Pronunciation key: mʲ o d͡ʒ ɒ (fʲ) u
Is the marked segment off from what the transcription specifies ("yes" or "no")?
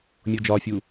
no